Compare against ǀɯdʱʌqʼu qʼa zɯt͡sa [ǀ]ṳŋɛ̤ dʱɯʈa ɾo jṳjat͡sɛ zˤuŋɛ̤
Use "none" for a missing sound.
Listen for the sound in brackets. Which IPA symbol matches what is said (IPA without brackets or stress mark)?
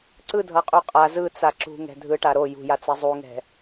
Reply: ǁ